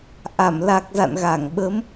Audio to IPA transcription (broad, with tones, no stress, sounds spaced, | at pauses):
ʔ a˧˩ m l a˨˩ k̚ z a̰˧˨ n ɣ a˧˩ ŋ ɓ ə˨˦ m